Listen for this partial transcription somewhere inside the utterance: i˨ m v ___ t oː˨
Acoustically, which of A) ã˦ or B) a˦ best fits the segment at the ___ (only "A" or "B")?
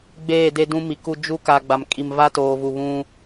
B